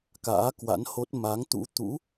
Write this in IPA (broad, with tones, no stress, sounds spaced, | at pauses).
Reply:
k a̰ː˧˥ k w a̰˧˥ n h o˦˥ t̚ m a˨˦ ŋ t̪ ṵ˧˥ t̪ ṵ˧˥